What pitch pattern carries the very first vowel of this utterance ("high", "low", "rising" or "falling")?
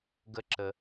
high